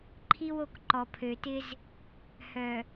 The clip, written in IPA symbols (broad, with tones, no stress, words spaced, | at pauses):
ǃʰi˦wo˦˨k ǃɔ˨pʰø˨tɪ˦z | hœ˨